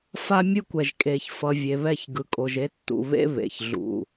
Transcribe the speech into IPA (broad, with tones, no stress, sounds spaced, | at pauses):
f a˦ mʲ ɯ˦ kʷ ɛ˨ ʒ kʼ eː˨ ç f ʌ˨ vʲ e˨ β ɛ˦˨ ç ɡ ɯ˨ kʼ o˨ ʒ e˦ tː ṵ˨ β ḛ˦ β ḛ˨ ç ɮ ṵ˨